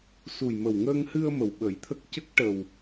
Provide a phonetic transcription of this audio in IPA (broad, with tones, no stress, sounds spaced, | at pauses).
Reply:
s u˨˩ j m ə˨˩ w ŋ əː˧ ŋ h ɨ˧ ə̯ m ə˨˩ w ɓ ə˨˩˦ j t̪ʰ ə˦˥ k̚ c ə˦˥ k̚ ʈ ə˨˩ w